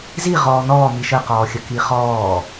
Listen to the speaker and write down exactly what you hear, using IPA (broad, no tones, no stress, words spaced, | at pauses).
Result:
ziʁɔː nɔː miʃəqɔːxʲə kiχɔː